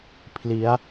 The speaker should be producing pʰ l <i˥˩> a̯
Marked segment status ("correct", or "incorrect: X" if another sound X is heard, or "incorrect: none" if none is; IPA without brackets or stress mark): incorrect: i˦˥